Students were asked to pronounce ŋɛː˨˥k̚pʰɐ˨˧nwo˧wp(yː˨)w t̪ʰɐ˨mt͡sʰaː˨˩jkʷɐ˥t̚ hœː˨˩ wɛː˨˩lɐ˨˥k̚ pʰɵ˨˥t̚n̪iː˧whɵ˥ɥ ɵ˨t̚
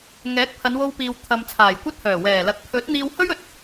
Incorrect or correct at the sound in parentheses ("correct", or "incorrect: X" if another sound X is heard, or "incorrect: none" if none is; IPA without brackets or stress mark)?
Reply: incorrect: iː˨